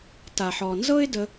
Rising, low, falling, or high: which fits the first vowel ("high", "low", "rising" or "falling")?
low